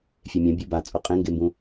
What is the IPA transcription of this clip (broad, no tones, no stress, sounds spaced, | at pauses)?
fʲ e mʲ ã bʲ u b a t͡sʼ o qʼ ẽ ŋ ɡ e m b ũ